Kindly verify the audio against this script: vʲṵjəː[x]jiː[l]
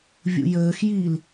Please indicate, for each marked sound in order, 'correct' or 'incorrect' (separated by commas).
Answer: correct, correct